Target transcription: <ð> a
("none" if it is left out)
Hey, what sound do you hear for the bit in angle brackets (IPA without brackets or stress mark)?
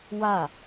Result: w